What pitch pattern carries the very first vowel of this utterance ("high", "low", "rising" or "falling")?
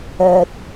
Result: low